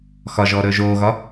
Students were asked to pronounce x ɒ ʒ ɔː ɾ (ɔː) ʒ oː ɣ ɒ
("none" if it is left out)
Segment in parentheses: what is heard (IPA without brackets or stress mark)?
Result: ɵː